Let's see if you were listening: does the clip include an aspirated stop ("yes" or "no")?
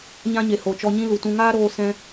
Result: no